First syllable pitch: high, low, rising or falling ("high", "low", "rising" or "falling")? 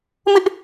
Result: high